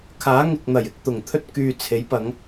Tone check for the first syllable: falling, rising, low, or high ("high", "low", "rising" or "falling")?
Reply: rising